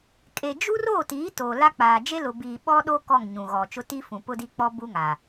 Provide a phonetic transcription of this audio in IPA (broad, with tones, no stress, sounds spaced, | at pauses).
kʼ e˨ d͡ʒ u˦ r oː˦˨ t iː˨˦ t oː˨ l a˦ k͡p aː˨ d͡ʒ e˦ l ʊ˨ b iː˨ ɓ ɔ˦ ɗ o˦ k ɔ˦˨ ŋ ɲ ũ˨ ɣ ɔ˨ t͡ʃ ʊ˦ t i˦ f ũ˨ p ʊ˦ d i˦ k͡p ɔ˦ b u˦ ŋ a˨